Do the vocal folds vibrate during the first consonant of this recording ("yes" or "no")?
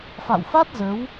no